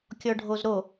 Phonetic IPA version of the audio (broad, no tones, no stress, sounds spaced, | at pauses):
kʲ ɔ ɖʱ o z ɾ o